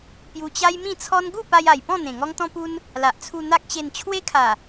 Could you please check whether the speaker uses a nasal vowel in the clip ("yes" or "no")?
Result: yes